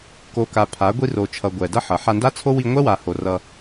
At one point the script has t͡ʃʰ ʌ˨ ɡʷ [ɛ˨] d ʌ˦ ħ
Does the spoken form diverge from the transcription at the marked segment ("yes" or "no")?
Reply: no